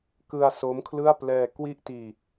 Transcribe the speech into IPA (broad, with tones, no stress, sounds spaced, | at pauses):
k ɯ˧ a̯ s o˦˥ m kʰ l ɯ˥˩ a̯ p l ɛː˧ k w i˥˩ ʔ t iː˧